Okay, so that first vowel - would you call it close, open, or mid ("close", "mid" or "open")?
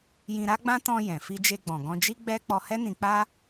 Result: close